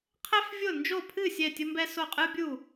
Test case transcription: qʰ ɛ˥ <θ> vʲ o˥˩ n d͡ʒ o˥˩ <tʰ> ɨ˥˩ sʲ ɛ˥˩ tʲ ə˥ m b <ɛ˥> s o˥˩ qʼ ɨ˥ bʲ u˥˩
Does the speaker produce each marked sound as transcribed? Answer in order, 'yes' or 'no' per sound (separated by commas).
no, no, yes